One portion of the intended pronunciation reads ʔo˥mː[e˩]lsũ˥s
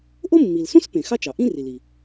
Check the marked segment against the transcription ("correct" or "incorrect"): incorrect